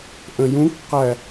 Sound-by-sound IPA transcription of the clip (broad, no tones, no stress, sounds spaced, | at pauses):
ʔ ə̃ j ũ k q æ